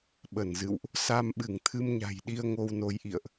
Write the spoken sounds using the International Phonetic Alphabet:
ɓ ə˧˩ n z ɨ̰˧˨ w ʔ | s a˧ m ɓ ɨ˧˩ ŋ t̪ʰ ɨ˧ m ɲ a̤˨˩ j ɗ i˧ ə̯ ŋ o˧ w n o˨˦ j ʔ ḭ˧˨ ə̯ ʔ

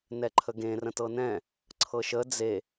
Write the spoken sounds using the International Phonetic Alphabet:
n ɛ ǃʰ ə ɡ ẽ r ə̃ t ɤ n ɛ̃ | ǀʰ ɤ ʃ ə d͡z e

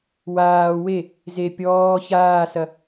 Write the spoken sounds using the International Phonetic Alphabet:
w aː w e | z e pʲ ɔː ç aː s ɐ

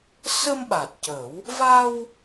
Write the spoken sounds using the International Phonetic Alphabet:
s ə˧ m ɓ a˨˩ t̚ c ə˨˩˦ w | v a˧ w

